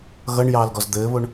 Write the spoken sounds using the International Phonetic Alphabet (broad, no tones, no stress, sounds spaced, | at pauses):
ɣ ʌ ɳ j ɑː l ɡ ɔ z d̪ ɘː β o ɳ